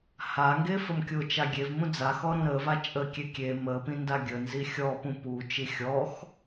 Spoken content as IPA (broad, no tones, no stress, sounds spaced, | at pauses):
h a ŋ ɡ e f ə m kʲ ʊ t͡ʃ a ɡʲ e v m ũ d͡z a x ɔ ɾ ũ ɾ ə v a t͡ʃʼ ə kʲ e kʲ e m ə p ĩ n d a ɡʲ ə n z i xʲ ɔ p ũ p u t͡ʃ i xʲ ɔ x